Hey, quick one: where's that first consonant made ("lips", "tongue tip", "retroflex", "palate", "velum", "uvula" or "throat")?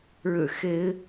retroflex